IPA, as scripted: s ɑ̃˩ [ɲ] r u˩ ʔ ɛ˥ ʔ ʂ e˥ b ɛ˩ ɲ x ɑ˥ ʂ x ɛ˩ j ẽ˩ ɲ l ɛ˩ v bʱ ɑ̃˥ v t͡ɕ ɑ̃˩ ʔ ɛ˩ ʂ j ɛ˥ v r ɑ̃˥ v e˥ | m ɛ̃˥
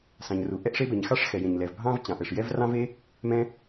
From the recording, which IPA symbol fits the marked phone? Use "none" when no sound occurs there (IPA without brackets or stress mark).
ɲ